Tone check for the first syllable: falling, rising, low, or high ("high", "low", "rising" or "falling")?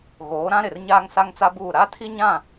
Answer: rising